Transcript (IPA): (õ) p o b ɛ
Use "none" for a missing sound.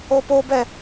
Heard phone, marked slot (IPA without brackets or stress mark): o